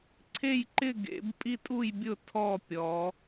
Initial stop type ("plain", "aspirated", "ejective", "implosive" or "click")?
click